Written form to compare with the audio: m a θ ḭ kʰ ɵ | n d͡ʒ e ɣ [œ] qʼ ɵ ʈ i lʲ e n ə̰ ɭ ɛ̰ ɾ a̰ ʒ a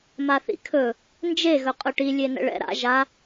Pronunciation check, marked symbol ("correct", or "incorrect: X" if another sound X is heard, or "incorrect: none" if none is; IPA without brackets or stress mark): incorrect: ɵ